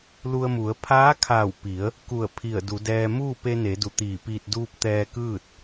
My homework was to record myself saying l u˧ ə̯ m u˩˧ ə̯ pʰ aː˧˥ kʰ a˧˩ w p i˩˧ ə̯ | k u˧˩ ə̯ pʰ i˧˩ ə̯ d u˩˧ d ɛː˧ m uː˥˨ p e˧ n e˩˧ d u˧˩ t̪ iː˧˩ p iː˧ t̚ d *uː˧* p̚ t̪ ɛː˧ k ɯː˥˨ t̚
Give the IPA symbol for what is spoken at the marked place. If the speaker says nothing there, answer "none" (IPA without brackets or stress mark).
uː˧